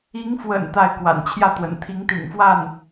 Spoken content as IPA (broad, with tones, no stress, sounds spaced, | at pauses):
i˧˥ ŋ f w ə̰˨˩ n t̪ a˥˩ ɪ̯ k w a̰˨˩ n t͡ɕʰ j ä˥˩ t̪ w ə̰˨˩ n t̪ʰ i˧˥ ŋ t̪ ḭ˨˩ ŋ f w a˥˩ n